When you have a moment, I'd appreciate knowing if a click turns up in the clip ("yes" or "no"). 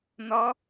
no